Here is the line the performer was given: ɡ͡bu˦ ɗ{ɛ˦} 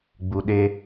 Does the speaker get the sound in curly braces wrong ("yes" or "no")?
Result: yes